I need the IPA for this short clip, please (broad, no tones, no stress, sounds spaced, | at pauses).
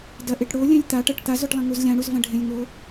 d ɐ ʔ e ʈ ɽ o lʲ ẽ lʲ t̪ a ʈ ɐ ʈ t̪ a z o ʈ lˠ ɐ̃ ŋ u z lʲ ã ɽ u z v ɐ̃ ɖʱ ẽ lʲ ŋ o